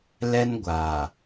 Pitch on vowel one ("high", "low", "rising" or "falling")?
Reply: high